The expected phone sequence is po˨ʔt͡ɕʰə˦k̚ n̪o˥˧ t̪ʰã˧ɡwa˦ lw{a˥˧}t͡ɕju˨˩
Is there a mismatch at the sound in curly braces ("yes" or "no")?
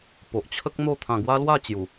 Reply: no